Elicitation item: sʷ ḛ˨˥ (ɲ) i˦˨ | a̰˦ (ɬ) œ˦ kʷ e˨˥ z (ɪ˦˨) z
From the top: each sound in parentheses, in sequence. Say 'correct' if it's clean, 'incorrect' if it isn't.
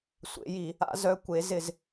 incorrect: j, incorrect: z, correct

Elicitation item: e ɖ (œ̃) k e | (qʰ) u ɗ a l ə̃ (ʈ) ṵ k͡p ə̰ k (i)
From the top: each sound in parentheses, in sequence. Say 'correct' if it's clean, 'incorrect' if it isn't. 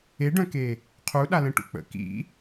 correct, correct, correct, incorrect: ḭ

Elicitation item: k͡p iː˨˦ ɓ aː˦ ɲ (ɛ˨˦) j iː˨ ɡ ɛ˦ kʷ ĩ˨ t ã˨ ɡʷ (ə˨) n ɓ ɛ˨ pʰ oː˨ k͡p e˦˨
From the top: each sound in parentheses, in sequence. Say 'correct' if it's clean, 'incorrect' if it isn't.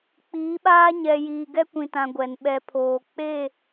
incorrect: ɛ˨, incorrect: ɛ˨

